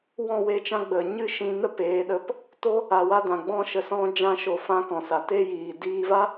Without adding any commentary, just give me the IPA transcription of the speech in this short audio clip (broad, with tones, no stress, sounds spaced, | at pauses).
w ɔ̃˦˨ w e˧ t͡ʃ ã˧ ɡ͡b ə˨ ɲ ɨ˦ ʃ ĩ˧ n ə˦ p eː˨˦ ɗ ə˧ p | t o˦ | a˨ w a˧ d ã˨ ɡ͡b ɔ̃˧ ʃ ə˨ s ɔ̃˧ d͡ʒ ã˧ ʃ o˨ f ã˧ k ɔ̃˨ s a˨ t e˦ j iː˨ d iː˧ v a˦